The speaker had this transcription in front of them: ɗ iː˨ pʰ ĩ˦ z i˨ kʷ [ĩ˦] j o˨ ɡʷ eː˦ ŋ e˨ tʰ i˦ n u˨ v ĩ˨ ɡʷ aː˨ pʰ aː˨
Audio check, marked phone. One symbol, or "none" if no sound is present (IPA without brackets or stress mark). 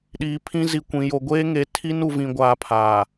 ĩ˨